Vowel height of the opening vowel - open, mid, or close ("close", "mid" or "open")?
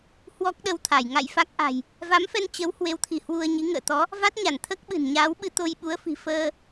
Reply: mid